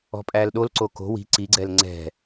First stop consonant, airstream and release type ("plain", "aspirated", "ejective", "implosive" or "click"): ejective